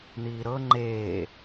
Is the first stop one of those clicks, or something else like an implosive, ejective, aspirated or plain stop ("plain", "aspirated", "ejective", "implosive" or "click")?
click